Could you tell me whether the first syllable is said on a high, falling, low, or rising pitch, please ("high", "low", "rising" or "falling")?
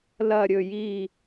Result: falling